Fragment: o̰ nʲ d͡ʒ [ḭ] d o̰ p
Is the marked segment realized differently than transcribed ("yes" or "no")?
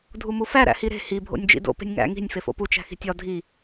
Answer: no